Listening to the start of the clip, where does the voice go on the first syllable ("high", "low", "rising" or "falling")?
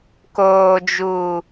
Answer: low